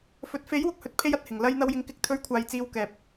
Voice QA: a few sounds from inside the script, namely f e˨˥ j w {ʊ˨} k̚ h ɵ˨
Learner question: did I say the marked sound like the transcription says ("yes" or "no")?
yes